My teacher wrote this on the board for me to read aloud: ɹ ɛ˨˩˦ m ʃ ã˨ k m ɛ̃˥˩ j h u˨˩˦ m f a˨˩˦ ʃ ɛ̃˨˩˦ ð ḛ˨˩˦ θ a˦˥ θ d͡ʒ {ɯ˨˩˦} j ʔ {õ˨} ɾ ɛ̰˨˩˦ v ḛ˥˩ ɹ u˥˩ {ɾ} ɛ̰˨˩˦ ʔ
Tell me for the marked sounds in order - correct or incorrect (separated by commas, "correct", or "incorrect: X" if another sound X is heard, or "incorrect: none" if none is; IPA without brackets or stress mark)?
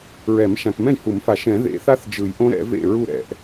correct, incorrect: õ˦˥, correct